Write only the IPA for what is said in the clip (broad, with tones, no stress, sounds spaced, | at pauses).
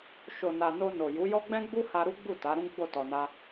ʃ o˨ n a˨ n o˧ n o˨ j u˨˦ j ɔ˦ ɡ͡b ɛ̃˦ ɡ͡b u˦ h a˧ ɾ u˦ ɡ͡b u˦˨ t a˨˦ ɾ ũ˦ ɡ͡b o˦˨ t ɔ˧ n a˦